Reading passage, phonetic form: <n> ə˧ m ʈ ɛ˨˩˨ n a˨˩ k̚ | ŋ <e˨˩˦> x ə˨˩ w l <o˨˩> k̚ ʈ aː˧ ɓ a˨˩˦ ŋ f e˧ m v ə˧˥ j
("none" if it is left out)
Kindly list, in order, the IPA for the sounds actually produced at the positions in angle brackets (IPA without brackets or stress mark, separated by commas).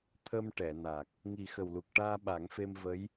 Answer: t̪ʰ, i˨˩˦, u˨˩